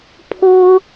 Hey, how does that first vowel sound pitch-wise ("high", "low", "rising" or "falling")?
high